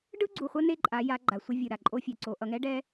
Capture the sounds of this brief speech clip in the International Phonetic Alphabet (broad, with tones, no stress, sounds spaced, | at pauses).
ɖ ɯ˦ ɡ͡ǀ u˨ χʷ ʌ˦ n e˦ ǃʼ a˨˦ j a˨˦ ɡ͡ǃ a˨ sʷ ʌ˦ vʲ ɯ˨ ɾ a˨ ǃʼ o˦ fʲ ɛ˨ ǀ o˨˦ ʔ ʌ˨ ŋ ɛ˦ ɖ ɛ˦